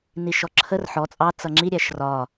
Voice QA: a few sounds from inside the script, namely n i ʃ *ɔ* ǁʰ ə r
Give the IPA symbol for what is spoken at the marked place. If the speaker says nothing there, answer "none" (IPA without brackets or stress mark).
ɔ